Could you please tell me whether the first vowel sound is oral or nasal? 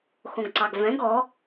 nasal